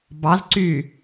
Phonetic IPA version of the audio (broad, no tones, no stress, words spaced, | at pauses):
bɑzǀy